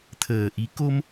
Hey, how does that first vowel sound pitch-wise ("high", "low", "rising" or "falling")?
low